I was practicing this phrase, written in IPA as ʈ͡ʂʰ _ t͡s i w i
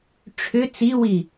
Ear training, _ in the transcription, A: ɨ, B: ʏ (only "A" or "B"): B